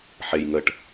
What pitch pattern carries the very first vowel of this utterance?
low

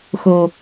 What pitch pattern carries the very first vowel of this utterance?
low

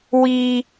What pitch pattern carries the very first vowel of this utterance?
high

